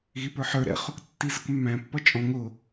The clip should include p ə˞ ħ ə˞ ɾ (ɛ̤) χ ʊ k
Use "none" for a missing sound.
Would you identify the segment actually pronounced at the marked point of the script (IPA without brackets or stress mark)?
ɛ̰